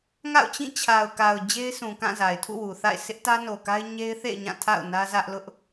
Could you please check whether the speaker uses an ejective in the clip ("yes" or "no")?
no